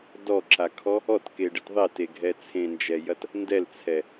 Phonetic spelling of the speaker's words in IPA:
d ɔ ǁ a kʰ ɔ | ɔ t k e ɖ ɨ t ðˤ e t e ɡʱ ɛ t͡sʰ ẽ n d͡ʒ ɛ j ɐ t | n d ɛ l t͡sʰ ɛ

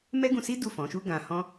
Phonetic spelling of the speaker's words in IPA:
m ɛ˦ ɡ ũ˧ s i˦ d u˦˨ f ɔ̃˨˦ ʃ u˦ ɡ ã˧ h ɔ̃˦

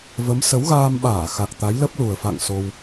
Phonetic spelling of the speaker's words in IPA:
v ə˨˦ m s ə˨˦ w ɣ aː˧ m ɓ aː˧˩ x a˨˩ k̚ t̪ a˨˦ j l ə˦˥ p̚ l u˨˩ ə̯ f a̰˧˨ ŋ s o˧ w

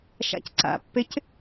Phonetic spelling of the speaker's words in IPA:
ʃ a̰ c ǀ a̰ pː e c

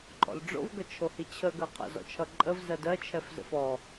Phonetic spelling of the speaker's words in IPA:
ǃʼ ɔ̰ l ɖ͡ʐ o̰ v ɡ ʌ t͡ʃʰ o h i t͡ɕʰ ə ɡ ɜ qʰ ə̰ z ɔ̰ t͡ʃʰ ʌ ǃʼ ə v z ɜ d ɜ t͡ʃʰ ɛ f z ə̰ f ɔ

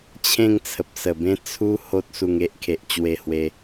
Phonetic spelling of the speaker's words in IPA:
t͡ɕʰ ẽ˥˧ ŋ t͡sʰ ə˨ p̚ s ə˨˩ b ẽ˦ t͡sʰ u˦ h o˦ t̚ s u˧ ŋ e˦ ʔ kʰ e˨ ʔ t͡ɕ w e˧ h w e˧

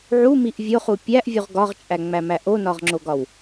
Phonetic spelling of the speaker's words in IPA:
ʕ u m i ʔ vʲ o χ u pʲ æ ʔ vʲ u ʁ ɡ ɒ ʁ t͡ʃʼ æ ŋ͡m æ m æ ʔ o n ɒ ʁ ŋ͡ǁ o ɡ ɒ w

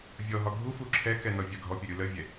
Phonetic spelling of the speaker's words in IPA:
vʲ ɔ ɦ ɒ ɡʱ u f u ǁʰ ɛ k ɛ n ɔ vʲ a ɡʱ ɔ pʲ ə ɾʲ u l ə vʲ ɛ

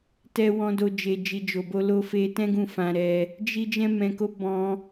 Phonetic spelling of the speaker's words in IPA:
t ɛ˧ w ɔ̃˧ d o˧ d͡ʒ e˨ d͡ʒ i˨ d͡ʒ o˨ b o˧ l o˧ f e˧ t ɛ̃˦ ɡ ũ˦˨ f ã˧ ɾ ɛ˧ | d͡ʒ i˧ d͡ʒ ɛ̃˧ m ɛ̃˨ k o˨˦ b ɔ̃˧

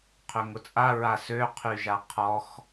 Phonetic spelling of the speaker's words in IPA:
qʰ ø ŋ ʊ t͡sʼ a ɹ a s ø qʰ y ʒ a qʰ ɔ x

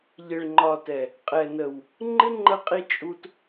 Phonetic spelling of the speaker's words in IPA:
ʎ ɪ˨ ɭ ŋ͡ǃ ɒ˨ t ɛ˨ | qʼ ɛ˨ n ə˨ w | ŋ͡ǃ ɪ˦ ŋ͡ǃ ə˧ qʼ i˧ t͡ʃʼ u˧ t

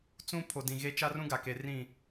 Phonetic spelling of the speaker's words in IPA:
t͡s ũ˦ pʰ o˨ d ĩ˨ ɣ e˦ t͡ʃ a˦ r ũ˦ ɡ a˨ k e˨ r ĩ˦˨

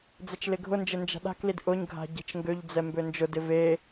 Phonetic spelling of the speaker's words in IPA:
d͡z ɛ t͡ʃ l ɪ ɡʱ ʊ n d͡ʒ ɪ n d͡ʒ a̤ ɗ a̤ k l i d ʔ ʊ ɲ ɡʱ a̤ ɟ e̤ t͡ʃ ŋ ɡ ø ʎ d͡z ɛ m b ø n d͡ʒ ʊ d ɪ v e

